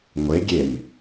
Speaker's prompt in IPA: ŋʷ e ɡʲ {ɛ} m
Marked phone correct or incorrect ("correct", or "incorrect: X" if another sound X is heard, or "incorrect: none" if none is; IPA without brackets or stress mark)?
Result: incorrect: e